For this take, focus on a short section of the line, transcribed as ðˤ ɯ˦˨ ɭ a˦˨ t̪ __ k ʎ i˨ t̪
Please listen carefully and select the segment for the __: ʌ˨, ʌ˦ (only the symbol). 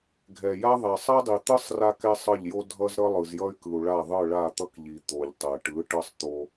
ʌ˦